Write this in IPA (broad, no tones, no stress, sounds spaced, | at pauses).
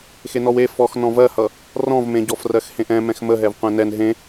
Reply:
x e n ɔ w e f ɔ x n ɔ̃ v ɜ h ʌ | r ɔ̃ v m ẽ ɟ ɔ f r ɜ x h ẽ ʔ ɛ̃ m ɛ̃ x m ə ɦ ɛ v qʷ ɛ̃ n ɛ n ɦ ẽ